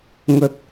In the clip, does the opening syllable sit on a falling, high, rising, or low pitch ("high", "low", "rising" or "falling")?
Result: low